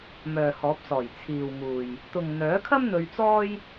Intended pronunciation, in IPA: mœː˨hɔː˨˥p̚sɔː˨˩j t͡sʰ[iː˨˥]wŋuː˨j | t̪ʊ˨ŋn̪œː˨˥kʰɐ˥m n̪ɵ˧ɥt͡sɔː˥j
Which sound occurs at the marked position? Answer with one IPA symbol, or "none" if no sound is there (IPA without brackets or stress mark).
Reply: iː˨